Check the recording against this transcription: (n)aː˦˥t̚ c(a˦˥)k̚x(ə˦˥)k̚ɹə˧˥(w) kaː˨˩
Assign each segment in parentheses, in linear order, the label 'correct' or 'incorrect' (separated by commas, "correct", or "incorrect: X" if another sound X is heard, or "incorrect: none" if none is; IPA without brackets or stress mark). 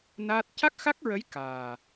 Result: correct, correct, incorrect: a˦˥, incorrect: j